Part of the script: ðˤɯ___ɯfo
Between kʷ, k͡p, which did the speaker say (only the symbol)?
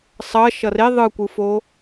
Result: kʷ